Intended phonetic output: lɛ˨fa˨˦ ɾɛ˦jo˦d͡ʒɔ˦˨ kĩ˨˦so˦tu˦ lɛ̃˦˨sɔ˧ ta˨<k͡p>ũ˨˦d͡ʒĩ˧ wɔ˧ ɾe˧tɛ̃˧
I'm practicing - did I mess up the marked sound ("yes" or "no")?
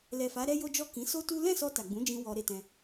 yes